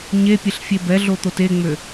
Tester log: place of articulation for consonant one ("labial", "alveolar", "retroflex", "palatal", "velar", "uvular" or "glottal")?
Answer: palatal